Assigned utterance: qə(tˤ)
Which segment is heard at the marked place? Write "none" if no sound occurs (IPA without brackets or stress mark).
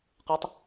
tˤ